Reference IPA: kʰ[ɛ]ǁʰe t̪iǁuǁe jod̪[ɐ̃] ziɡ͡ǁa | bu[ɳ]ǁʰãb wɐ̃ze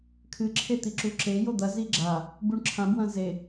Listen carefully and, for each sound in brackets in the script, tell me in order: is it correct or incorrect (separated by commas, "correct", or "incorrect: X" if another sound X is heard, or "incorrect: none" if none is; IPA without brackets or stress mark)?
incorrect: ɨ, incorrect: ɐ, correct